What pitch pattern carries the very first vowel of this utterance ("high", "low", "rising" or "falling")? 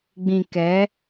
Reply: low